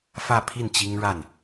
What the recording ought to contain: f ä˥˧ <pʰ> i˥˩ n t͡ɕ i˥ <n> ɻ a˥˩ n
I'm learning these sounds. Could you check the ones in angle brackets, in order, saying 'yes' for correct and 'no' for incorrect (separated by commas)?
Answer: yes, no